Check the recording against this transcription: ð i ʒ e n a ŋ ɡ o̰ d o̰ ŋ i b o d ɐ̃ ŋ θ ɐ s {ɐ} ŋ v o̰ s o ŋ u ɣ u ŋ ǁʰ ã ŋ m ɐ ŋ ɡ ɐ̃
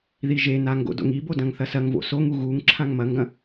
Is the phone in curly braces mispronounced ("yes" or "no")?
no